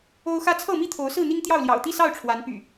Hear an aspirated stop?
yes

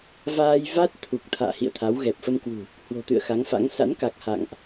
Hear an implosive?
no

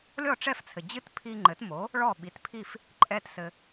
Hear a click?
yes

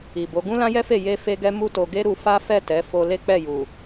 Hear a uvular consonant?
no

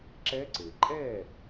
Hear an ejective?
yes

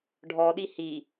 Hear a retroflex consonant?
yes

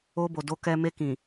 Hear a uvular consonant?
no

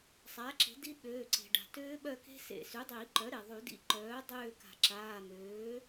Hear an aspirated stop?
no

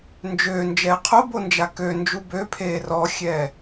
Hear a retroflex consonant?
no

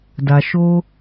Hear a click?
no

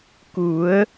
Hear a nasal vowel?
no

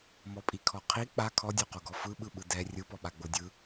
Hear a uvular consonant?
yes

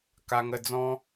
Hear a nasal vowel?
yes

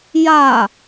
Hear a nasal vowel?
no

